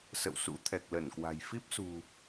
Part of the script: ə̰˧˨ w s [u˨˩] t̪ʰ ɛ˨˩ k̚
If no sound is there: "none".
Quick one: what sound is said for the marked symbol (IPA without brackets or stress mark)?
ṵ˧˥